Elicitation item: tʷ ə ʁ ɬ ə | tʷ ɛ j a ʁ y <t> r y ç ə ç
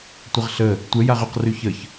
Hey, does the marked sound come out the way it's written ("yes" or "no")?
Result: no